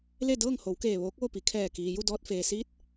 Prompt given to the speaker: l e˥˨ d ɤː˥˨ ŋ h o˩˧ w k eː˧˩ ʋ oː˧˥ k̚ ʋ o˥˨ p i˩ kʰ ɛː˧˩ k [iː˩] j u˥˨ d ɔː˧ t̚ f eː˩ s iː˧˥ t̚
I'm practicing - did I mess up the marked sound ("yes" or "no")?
no